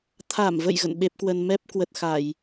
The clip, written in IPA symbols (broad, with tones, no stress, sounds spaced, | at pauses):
t̪ʰ a˧˩ m v ə̰˧˨ j ɣ ə̰˧˨ n ɓ e˦˥ p̚ k w ə˧ n m ɛ˦˥ p̚ k w ə˨˩ t̚ x a˧˩˨ j